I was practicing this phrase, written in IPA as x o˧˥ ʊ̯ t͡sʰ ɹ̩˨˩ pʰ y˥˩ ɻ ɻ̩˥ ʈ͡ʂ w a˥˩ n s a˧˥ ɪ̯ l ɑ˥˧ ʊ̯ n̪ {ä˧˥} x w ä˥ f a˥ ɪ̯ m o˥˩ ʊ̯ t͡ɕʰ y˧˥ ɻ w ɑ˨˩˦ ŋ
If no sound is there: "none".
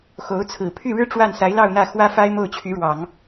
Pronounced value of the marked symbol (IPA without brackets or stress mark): ä˥˩